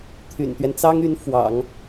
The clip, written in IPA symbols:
t̪ʰ y̰˨˩ n t̪ ɥ ɛ˦ n t͡s ɑ˥ ŋ y˧˥ n f w ɑ̰˨˩˦ ŋ

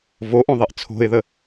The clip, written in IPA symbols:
v o ʔ õ ðˤ e ʔ t͡sʰ o̤ ɪ̯ ð ə

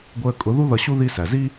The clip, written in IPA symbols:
ɡʷ əː˧ kʼ ʊ˨˦ ð u˦ ð ʌ˧ ɕ u˦ ð i˦ s æ˨ z i˦

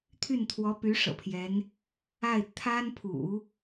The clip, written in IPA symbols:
t̪ʰ y˥˩ n t̪ʰ w ɔ˧˥ p y˧˥ ʂ ɤ̰˨˩ pʰ j ɛ˧˥ n | a˥˩ ɪ̯ t̪ʰ a˥ n pʰ ṵ˨˩˦

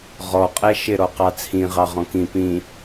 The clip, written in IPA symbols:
ʁ ɔ qʼ ɛ ʃ ɪ ɾ ɔ q ɑ t͡sʰ ĩ ʁ ɑ ʁ ɔ̃ k ĩ p ĩ

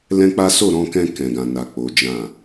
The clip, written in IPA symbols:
l ɛ̃˦ k͡p a˦ s o˦˨ ɾ ɔ̃˧ k ɛ̃˧ k ɛ̃˨ ɡ ã˨ n a˨ k͡p o˨˦ d͡ʒ ã˦˨

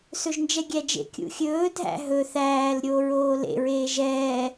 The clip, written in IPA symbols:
s ɵ ʒ n d͡ʒ ɛ ɡʲ æ d͡ʒ ḛ kʲ ṵ xʲ ɵː dʱ æ̰ ɦ ɵ θ æː l ɾʲ oː ɹ oː l ḛ ɹ eː ʒ ɛː

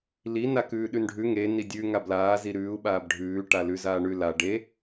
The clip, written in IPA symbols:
l i n a k ʉː ɗ ʉ n ɖʱ ʉ ŋ e n i dʲ ʉ ŋ a b l aː z i ɾ ʉː u̯ ɓ aː b ɖʱ ʉː ʈ a l ʉ z aː ɳ ʉ l a ɖ e

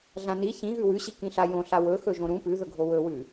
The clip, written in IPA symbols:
ɮ ã n i ç ĩ ɣ ʉ w ʉ ɕ i k ĩ ɬ a j õ ɬ a w ɵ x ɵ ʒ õ ɾ ũ p ʉ ð ɵ ɡʱ o w ɵ w ʉ

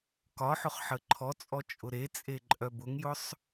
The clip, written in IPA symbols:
k ɒ ħ ʊ χ ħ ə ǃʰ ɔ t͡sʼ ɔ t͡ʃʼ ʊ ɾ e t͡sʼ e ǃʼ œ b ʊ ŋ j ʊ sˤ

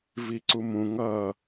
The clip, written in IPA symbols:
v i ǀ u m ũ ŋ ʌː

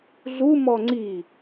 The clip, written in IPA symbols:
ɮ u m ɔ ŋ͡ǀ i

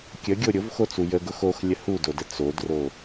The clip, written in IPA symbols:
kʲ ə ɡʲ o ɾʲ ʊ v x o t͡s u j ə ɡ ʊ x o x lʲ ə h u d o d ə t͡s o d r o

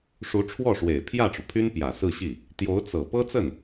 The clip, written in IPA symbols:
ʂ u˧˥ ʈ͡ʂʰ w ɔ˥˩ ʂ w e˨˩ ɪ̯ pʰ j ä˥˩ ʈ͡ʂ u˩ pʰ y˥ n p j ä˨˩ s ɹ̩˥˧ ɕ i˥˩ | t̪ j o˧˥ ʊ̯ t͡s ɤ˨˩ p ɤ˥ t͡s ə˥˩ n

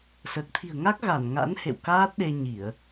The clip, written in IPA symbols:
s əː˨˩ k̚ t̪ʰ i̤˨˩ ə̯ ŋ a˦˥ k̚ ɣ a˧˩ n ŋ a̰˧˥ n h ḛ˧˨ w k aː˦˥ t̚ ɗ e˧ ɲ i˧˩˨ ə̯

